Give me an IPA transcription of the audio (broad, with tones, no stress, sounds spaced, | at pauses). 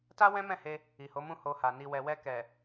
t a˦ w ɛ̃˦ m ɛ̃˦˨ h e˧ | i˨ h o˨˦ m ũ˦ h o˧ h a˨ n i˧ w ɛ˧ w ɛ˧ k ɛ˨